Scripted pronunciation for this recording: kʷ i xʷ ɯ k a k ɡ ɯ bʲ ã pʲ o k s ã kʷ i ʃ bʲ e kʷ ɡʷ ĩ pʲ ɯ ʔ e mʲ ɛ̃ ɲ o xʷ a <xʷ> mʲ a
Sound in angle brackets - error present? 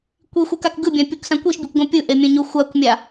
yes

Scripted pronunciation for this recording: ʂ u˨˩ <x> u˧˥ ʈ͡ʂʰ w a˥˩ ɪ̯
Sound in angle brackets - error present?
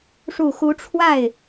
no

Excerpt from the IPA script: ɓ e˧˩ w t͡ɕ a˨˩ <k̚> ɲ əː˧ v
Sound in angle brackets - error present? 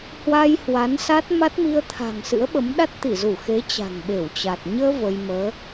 yes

